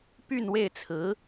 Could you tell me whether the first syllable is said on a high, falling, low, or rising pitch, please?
falling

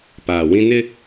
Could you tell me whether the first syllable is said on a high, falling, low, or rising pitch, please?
low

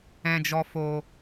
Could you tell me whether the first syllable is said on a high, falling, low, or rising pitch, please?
low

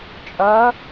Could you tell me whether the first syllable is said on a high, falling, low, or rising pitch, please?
rising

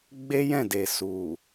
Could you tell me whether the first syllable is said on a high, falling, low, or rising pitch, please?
high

